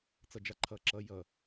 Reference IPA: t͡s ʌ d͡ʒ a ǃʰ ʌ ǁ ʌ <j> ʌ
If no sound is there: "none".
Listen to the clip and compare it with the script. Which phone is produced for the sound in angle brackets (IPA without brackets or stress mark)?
j